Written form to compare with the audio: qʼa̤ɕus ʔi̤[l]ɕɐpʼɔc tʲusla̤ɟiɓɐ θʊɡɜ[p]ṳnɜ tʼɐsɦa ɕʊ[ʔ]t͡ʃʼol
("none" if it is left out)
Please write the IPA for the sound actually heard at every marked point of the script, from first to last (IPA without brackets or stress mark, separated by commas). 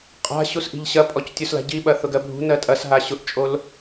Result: ʎ, bʱ, ʔ